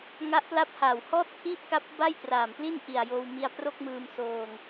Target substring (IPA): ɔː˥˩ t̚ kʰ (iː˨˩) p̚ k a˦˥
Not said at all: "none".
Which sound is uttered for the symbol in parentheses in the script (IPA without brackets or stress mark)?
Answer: iː˥˩